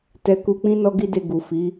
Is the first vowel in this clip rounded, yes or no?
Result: no